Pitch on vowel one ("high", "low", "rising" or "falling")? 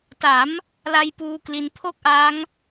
rising